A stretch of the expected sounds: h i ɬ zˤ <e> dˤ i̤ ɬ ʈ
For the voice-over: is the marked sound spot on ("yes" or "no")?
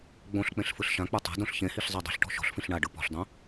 no